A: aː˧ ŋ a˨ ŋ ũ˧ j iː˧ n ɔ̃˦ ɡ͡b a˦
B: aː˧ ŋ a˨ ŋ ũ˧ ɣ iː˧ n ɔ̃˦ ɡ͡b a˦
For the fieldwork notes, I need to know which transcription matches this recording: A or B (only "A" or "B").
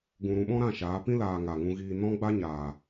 B